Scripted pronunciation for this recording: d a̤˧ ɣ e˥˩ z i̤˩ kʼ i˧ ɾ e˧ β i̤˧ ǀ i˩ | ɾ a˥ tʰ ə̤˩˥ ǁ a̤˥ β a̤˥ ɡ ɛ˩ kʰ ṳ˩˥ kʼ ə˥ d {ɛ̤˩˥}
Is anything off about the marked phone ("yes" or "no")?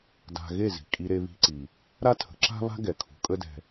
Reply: yes